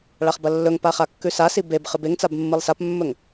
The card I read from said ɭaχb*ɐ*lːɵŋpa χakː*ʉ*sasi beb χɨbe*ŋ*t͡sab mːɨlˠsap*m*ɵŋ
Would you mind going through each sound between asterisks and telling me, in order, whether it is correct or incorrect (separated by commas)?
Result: correct, correct, correct, incorrect